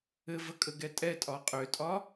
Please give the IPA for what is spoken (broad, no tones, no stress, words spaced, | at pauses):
ɘvəkʼə ɡɛtʼɛtʼɒ qʼøtʼɒ